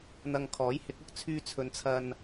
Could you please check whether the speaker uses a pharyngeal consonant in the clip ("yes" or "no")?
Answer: no